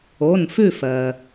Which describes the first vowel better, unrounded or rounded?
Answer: rounded